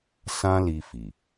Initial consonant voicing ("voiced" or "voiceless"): voiceless